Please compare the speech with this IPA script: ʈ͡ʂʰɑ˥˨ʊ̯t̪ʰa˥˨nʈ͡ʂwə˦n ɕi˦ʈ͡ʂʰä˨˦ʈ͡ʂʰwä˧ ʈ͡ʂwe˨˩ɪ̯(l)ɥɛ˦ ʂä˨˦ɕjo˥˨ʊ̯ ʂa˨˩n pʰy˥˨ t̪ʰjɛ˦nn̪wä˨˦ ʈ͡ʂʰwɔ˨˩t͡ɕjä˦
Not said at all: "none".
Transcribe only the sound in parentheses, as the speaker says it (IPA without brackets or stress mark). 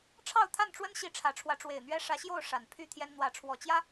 n̪